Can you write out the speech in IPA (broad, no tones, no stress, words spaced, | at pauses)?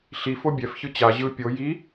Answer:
ɬi fobʲɛfçɯ t͡ɕa ʑɯ pʲo ji